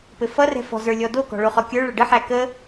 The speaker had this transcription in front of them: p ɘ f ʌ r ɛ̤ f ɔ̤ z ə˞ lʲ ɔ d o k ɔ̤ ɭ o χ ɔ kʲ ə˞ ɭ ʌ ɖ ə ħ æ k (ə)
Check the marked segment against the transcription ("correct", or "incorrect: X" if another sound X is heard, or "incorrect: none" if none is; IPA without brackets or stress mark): correct